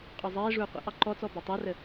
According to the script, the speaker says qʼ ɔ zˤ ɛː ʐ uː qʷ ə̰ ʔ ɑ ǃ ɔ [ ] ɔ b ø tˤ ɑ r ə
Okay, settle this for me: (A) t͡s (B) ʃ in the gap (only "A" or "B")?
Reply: A